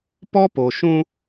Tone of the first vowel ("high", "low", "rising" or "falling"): high